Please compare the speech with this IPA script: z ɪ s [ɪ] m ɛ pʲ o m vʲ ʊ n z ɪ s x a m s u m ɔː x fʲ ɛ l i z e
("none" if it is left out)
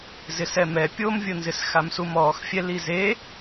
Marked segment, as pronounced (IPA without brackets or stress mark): ɛ